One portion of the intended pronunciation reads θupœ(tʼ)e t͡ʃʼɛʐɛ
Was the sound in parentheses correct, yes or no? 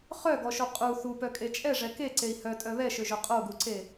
no